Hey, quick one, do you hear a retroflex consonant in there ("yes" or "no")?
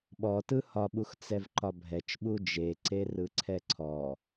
no